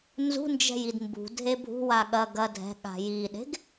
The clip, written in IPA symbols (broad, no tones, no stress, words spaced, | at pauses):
nzṳnd͡ʒɛ̤jid mbṳdʱe bʱṳwa ɠɐ ɡɐ dʱɛ̤ɠa̤ jiɗe̤ɡ